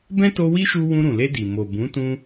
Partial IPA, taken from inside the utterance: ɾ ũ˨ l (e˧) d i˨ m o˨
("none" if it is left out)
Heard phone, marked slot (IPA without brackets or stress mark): e˧